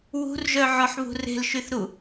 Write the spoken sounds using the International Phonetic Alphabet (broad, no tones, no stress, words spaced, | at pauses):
wṳrʒœʕɔħβṳ re̤lʃyθɾu